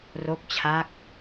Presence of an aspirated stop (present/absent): present